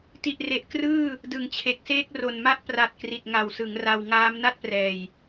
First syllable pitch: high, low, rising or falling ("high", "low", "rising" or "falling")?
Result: low